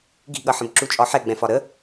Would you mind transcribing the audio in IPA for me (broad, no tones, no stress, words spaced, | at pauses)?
ɡi̤ɠʌħə̃b ǁut͡ʃʼɒħɛ ɡ͡bɛ̃fɒɾə